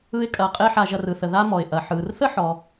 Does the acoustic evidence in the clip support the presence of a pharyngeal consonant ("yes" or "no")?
yes